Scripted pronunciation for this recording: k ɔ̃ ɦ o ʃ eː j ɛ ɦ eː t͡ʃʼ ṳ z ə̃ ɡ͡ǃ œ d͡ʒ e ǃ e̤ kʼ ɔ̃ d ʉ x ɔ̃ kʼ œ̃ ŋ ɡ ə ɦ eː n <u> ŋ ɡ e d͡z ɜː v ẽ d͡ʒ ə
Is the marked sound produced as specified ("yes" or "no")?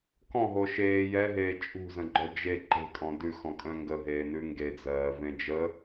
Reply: no